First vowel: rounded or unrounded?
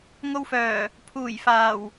rounded